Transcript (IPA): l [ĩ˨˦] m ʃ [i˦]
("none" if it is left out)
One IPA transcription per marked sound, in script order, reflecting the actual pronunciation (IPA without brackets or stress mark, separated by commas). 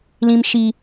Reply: ĩ˦, i˦